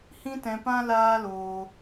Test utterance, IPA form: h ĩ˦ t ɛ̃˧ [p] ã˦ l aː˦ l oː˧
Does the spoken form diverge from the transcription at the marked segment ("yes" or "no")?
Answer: no